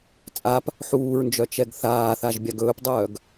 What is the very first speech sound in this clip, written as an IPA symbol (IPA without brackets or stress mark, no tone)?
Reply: t͡sʼ